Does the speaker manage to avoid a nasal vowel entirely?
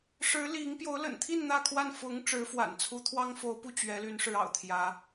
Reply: yes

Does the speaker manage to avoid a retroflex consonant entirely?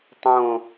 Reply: yes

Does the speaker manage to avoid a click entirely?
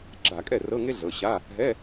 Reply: no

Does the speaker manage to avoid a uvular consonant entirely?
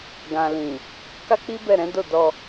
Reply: yes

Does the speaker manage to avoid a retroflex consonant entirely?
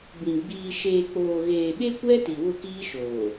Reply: yes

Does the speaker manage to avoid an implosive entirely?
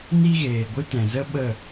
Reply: no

